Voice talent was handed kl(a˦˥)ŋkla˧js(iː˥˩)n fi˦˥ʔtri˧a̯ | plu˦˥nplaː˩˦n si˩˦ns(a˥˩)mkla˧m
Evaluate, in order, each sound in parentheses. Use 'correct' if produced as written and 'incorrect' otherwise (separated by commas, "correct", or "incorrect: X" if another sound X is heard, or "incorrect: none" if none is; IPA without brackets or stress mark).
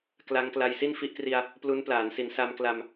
correct, incorrect: i˥˩, incorrect: a˧